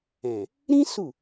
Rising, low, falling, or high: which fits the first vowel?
low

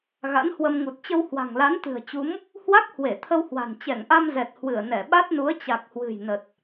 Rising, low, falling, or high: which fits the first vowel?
rising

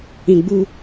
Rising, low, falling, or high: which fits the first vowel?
low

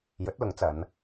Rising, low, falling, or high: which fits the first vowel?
rising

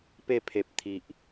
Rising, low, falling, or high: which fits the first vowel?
falling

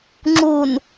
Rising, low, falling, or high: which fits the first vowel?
low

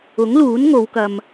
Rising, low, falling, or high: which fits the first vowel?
rising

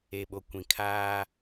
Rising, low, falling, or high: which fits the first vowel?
low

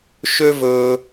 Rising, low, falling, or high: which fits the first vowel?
high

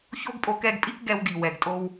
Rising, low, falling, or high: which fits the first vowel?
high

